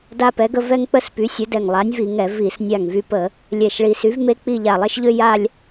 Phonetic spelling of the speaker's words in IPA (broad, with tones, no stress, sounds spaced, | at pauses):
d a˥ p ɛ˨˥ ɡ ə˥ v ɛ˥ ŋ k͡p ə˥ s p y˨˥ sʲ ə˨˥ d ɛ˧˩ ŋ lˠ a˨˥ nʲ v i˧˩˧ ŋ ɛ˧˩˧ v i˧˩˧ s nʲ a˧˩ ŋ v y˧ p ə˧˩˧ | lʲ ɛ˧˩ ʃ ɭ i˧ s y˨˥ v m e˥ k͡p i˥˧ ʎ a˧˩ lˠ e˥ ʃ ʎ ø˥ j a˥˧ lʲ